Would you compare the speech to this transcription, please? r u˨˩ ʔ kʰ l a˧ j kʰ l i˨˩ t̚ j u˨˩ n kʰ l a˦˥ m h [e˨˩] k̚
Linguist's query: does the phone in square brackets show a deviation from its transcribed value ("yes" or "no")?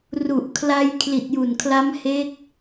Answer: yes